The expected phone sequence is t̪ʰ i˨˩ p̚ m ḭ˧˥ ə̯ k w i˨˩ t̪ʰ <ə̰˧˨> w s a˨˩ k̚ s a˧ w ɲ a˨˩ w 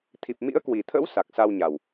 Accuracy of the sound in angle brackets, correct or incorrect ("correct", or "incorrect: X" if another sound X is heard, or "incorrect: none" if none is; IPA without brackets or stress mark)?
incorrect: ə̰˧˥